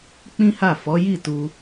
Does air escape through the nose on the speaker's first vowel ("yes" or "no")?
yes